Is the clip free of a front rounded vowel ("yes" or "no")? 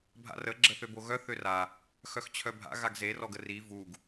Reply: no